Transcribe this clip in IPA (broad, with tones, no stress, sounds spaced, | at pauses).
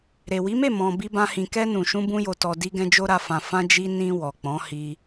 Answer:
ɾ e˨ w i˨˦ m e˦˨ m ɔ̃˨ b i˧ b ã˦ h ĩ˧ k ɛ˧ n ũ˨ ʃ ũ˧ b ũ˧ j o˨ t ɔ˨ d i˧ ɡ ɛ̃˧ d͡ʒ o˦ ɾ a˧ f ã˧ f ã˧ d͡ʒ i˧ n ĩ˧ w ɔ˨ k͡p ɔ̃˨˦ h i˧